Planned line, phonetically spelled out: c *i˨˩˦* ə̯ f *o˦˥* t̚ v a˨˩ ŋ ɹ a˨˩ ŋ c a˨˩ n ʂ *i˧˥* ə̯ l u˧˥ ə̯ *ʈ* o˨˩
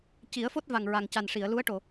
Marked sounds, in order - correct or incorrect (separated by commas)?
correct, correct, incorrect, correct